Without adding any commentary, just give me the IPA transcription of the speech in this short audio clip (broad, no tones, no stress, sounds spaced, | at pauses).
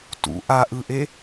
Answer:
t ṵ ʔ a ʔ ɯ ʔ e